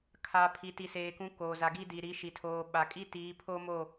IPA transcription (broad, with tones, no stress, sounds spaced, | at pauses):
kʰ a˨ pʰ i˨ t i˨ s eː˨ k ũ˨˦ k oː˨ z a˨ ɡ i˦ d i˨ ɾ i˨˦ ʃ i˨ tʰ oː˨ ɓ a˨ kʼ i˦ t iː˨˦ pʰ o˦ m o˦˨